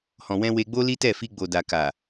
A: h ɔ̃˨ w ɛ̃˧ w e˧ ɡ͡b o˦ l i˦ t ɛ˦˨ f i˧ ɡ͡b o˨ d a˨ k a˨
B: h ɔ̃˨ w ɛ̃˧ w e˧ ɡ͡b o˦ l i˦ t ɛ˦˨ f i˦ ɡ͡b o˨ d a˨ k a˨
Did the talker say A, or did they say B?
A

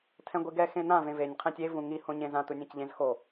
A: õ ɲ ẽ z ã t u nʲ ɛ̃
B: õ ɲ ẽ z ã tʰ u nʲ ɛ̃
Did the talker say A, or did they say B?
A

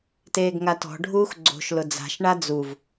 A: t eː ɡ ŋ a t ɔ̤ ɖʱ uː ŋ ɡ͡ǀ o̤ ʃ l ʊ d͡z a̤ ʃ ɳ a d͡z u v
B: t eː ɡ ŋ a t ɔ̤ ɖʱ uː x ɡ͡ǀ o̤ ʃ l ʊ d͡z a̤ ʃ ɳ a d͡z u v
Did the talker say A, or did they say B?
B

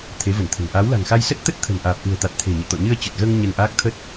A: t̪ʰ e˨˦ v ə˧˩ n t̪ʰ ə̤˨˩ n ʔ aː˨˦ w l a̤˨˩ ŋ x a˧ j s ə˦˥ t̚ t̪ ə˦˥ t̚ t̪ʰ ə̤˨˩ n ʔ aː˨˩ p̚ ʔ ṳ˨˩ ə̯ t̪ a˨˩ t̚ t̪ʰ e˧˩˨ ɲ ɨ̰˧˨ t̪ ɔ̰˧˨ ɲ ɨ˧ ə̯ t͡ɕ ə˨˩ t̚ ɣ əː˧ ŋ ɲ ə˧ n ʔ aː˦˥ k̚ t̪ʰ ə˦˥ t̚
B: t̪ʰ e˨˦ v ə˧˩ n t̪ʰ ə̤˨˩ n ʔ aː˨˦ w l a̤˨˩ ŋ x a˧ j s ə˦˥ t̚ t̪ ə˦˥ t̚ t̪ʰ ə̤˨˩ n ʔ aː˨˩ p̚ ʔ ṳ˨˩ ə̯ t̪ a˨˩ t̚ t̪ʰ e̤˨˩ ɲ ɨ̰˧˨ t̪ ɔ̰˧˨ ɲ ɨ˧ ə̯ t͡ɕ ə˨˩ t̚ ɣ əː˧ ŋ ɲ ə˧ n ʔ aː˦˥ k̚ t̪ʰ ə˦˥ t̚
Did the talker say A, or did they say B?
B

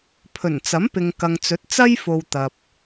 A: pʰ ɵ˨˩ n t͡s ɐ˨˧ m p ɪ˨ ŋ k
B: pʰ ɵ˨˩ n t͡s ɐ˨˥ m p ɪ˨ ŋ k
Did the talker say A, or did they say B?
B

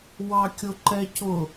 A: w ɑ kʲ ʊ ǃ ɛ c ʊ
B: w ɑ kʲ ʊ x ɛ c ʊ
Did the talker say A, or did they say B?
A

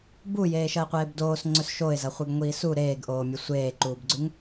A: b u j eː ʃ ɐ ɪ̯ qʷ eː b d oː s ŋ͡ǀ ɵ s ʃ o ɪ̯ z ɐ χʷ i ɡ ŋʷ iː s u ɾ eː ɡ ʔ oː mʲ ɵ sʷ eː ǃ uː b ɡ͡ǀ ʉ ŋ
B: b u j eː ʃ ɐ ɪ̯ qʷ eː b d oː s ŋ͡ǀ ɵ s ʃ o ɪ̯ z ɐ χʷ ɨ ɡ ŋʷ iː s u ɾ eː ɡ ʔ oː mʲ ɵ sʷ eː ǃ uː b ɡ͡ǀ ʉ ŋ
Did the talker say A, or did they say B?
B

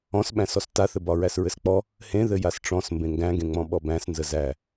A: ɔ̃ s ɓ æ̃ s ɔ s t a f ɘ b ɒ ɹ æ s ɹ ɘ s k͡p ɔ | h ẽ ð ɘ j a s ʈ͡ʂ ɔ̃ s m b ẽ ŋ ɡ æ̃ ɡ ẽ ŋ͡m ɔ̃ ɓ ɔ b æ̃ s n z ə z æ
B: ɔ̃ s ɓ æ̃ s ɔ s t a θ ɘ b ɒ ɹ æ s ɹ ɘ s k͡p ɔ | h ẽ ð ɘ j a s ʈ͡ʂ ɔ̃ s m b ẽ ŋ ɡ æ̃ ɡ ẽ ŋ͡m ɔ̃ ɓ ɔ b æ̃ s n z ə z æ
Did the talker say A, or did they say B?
B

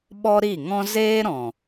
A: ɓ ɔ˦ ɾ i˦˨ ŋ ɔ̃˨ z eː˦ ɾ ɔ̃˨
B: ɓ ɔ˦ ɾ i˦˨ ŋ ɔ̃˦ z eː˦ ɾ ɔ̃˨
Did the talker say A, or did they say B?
B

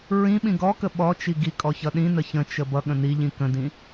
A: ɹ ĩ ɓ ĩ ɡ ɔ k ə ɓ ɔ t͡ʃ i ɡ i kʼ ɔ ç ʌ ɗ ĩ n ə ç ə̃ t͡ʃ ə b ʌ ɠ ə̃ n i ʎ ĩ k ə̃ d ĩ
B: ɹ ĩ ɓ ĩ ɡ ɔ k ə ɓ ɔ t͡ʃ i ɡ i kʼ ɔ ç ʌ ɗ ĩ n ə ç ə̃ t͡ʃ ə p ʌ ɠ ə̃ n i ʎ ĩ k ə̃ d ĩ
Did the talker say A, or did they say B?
A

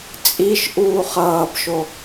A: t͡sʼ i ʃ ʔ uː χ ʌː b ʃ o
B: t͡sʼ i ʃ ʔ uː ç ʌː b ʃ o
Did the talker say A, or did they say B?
A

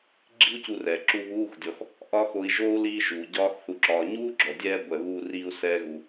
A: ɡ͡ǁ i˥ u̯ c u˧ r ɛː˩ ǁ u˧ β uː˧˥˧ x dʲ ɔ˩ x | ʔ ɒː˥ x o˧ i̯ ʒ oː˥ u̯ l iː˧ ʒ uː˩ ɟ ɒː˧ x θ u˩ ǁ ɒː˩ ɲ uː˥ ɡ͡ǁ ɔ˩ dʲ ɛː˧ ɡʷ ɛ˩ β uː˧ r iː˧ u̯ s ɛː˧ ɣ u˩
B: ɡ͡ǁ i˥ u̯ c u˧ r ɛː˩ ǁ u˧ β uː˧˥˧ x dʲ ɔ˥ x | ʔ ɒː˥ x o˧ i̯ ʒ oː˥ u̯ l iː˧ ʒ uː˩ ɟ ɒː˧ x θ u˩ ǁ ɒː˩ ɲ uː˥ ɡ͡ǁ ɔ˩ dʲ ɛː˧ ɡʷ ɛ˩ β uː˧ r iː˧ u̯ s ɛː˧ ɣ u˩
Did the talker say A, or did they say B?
A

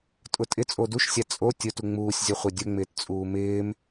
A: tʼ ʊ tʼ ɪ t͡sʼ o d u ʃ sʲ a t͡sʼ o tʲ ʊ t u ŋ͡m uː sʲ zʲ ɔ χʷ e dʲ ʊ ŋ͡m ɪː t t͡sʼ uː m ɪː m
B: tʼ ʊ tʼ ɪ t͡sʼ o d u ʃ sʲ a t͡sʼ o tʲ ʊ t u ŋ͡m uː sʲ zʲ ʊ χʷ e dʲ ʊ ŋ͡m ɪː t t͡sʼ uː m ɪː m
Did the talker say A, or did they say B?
A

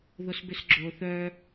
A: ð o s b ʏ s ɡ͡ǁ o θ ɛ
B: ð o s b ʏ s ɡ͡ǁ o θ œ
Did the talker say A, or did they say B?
B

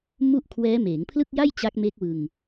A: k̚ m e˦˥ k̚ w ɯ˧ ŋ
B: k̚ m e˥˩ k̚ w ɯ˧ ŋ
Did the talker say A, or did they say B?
A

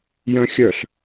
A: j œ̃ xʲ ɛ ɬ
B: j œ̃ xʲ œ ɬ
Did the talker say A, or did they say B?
B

